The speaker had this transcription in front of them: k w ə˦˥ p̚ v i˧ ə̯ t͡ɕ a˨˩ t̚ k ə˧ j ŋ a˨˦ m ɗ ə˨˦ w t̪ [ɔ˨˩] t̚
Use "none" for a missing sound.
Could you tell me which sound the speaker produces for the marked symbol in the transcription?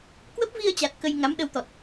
ɔ˨˩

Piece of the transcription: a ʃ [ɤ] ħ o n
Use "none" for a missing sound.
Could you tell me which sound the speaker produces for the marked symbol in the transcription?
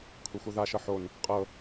ɤ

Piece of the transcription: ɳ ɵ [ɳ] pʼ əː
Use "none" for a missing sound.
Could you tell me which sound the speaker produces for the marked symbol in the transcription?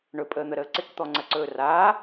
none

